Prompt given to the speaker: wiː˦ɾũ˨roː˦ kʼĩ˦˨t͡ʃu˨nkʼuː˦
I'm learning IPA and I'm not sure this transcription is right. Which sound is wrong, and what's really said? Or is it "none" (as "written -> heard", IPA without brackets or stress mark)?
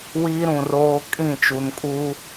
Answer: none